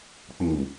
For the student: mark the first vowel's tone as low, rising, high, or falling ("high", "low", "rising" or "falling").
low